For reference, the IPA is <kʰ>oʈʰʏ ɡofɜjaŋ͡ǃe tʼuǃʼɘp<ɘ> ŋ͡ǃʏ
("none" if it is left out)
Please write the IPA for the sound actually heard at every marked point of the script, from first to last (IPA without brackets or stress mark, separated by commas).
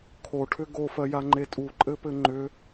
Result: kʰ, ɘ